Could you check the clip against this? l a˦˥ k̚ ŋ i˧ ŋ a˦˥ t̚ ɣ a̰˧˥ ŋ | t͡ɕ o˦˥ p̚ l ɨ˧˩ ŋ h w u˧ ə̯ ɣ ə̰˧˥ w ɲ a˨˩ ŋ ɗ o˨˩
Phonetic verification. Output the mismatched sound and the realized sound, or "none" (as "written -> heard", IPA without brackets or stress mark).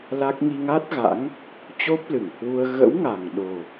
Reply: ɲ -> ŋ